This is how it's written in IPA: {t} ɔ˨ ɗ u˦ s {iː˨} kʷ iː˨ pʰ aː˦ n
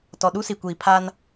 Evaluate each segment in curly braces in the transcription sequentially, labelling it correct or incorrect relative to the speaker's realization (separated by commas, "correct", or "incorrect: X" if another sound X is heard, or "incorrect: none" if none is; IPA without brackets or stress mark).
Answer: correct, incorrect: i˨